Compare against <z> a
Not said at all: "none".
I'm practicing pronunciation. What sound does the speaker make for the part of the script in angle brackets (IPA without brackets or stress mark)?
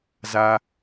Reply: z